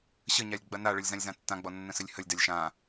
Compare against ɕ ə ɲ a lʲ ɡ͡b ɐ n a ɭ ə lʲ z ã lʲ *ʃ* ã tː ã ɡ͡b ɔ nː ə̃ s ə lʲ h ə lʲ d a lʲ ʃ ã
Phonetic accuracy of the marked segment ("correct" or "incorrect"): incorrect